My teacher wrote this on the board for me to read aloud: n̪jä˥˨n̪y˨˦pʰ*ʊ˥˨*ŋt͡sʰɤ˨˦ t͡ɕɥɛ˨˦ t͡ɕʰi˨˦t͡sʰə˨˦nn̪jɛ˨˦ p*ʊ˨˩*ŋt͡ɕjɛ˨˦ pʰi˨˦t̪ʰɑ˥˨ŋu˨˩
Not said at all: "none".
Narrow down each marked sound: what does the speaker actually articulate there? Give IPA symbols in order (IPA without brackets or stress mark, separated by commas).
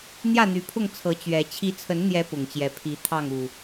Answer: ʊ˥˨, ʊ˨˩